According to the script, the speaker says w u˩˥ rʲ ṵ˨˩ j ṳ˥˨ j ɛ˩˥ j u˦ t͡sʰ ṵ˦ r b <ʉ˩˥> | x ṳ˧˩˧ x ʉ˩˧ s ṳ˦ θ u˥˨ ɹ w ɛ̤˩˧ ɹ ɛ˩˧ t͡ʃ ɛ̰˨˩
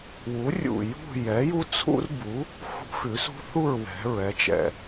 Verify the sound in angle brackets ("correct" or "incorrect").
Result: incorrect